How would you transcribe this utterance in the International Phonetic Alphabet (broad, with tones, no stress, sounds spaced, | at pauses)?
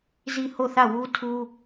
z i˦˨ h o˦˨ θ ä˦˨ w u˦ tʰ u˦